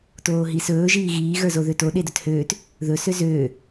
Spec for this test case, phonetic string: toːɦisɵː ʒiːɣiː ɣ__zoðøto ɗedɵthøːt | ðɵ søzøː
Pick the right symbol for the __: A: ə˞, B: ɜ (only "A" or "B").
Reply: A